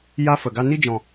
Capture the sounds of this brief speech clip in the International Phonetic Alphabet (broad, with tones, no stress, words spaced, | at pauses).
ja˦ fə˨ɡa˦ ni˦d͡ʒɔ̃˨